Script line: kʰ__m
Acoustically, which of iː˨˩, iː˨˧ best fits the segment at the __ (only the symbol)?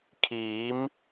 iː˨˧